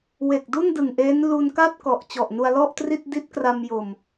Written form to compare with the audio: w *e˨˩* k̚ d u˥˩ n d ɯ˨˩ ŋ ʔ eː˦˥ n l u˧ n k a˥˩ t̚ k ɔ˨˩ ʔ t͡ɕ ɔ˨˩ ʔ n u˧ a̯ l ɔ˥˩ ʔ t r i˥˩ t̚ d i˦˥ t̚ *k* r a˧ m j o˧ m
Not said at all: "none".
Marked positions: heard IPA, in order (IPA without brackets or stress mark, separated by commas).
e˨˩, k